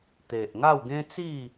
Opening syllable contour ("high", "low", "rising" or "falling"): low